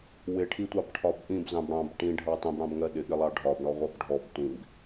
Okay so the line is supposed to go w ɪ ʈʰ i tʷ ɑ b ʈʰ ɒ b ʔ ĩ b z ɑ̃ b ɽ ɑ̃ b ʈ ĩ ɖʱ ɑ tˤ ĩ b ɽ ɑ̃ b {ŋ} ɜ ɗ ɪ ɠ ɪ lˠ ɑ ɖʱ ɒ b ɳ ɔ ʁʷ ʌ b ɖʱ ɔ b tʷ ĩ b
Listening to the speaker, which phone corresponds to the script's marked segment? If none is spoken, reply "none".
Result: ŋ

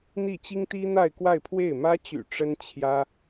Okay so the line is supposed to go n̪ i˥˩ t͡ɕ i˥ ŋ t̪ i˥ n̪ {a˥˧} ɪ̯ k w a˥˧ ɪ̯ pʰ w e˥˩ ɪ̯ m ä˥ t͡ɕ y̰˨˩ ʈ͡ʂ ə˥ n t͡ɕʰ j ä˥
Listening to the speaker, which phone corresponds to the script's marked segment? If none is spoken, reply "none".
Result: a˥˧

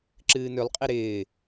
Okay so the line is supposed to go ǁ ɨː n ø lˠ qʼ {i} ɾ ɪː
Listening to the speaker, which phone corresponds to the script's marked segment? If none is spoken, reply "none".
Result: i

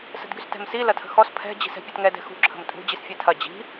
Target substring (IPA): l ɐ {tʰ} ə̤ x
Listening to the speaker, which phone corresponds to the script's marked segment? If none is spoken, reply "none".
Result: tʰ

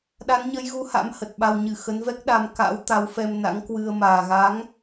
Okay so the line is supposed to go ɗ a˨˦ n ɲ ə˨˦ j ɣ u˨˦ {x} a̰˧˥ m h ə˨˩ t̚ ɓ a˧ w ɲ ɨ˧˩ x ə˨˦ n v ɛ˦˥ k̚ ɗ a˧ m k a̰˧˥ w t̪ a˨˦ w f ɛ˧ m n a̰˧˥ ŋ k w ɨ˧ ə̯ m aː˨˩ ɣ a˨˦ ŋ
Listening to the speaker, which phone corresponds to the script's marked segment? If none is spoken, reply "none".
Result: h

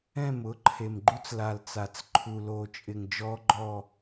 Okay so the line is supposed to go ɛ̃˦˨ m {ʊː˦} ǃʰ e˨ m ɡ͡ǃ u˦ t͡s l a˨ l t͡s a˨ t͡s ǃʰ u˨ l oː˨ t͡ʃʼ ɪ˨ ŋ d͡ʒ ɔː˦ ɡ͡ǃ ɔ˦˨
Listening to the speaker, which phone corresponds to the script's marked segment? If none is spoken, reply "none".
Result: ʊː˦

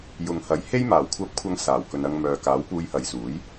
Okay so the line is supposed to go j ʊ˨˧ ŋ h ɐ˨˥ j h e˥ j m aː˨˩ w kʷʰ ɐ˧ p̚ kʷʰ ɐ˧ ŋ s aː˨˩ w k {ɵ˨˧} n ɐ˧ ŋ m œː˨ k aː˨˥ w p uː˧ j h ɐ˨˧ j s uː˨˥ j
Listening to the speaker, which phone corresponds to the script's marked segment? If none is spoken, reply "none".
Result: ɵ˨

